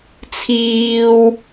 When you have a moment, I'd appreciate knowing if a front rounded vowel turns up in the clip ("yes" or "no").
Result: no